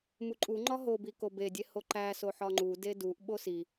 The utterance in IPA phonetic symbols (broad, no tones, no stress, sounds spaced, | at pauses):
m u ǃʼ u ŋ͡ǃ ɒ ɦ o b i k o b e dʲ e h o ǃ æ s o ħ ɒ ŋ͡ǃ u d e d u ʔ ɓ o s i